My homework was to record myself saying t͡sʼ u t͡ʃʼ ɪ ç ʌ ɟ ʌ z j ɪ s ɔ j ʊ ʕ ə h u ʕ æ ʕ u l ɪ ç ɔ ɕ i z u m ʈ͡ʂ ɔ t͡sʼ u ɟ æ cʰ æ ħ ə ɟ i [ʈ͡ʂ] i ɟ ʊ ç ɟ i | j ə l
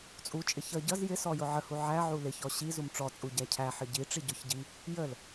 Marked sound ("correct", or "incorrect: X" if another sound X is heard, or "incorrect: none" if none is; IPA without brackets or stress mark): correct